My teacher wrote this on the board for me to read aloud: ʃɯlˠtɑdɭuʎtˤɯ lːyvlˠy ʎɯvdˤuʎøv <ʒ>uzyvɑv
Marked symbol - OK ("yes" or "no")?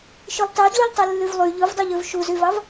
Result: no